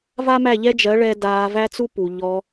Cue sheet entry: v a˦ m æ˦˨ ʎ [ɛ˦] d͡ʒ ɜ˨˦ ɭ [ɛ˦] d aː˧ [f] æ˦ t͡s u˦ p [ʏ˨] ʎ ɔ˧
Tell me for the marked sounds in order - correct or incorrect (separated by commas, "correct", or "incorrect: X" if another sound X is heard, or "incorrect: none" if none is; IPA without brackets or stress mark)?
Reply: correct, incorrect: ɛ˧, incorrect: v, incorrect: u˨